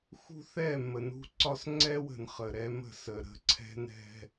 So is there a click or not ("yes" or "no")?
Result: yes